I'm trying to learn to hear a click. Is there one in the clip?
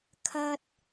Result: no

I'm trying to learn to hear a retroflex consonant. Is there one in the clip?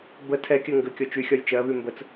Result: no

